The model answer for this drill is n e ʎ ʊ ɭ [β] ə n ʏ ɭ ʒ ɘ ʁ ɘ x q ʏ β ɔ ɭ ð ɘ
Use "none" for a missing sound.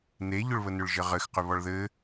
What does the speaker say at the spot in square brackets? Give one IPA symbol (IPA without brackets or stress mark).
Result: β